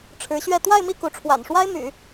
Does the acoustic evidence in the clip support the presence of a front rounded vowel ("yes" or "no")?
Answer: yes